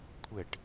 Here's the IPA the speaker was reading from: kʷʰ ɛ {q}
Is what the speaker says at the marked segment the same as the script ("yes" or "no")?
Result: no